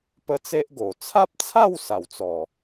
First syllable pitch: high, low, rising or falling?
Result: high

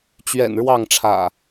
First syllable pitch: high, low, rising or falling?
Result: low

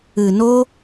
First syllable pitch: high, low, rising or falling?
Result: low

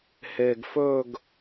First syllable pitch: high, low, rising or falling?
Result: low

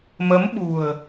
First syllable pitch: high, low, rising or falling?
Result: rising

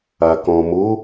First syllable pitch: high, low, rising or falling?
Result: low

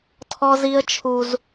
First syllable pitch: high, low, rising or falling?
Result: high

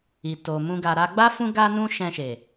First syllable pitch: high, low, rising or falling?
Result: low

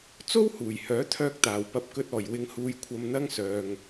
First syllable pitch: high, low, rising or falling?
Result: high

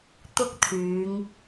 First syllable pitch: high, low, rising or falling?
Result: high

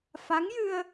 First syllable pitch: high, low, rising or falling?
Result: rising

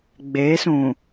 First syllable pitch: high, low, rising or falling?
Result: rising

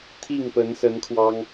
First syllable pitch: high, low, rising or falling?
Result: falling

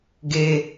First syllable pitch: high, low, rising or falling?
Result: high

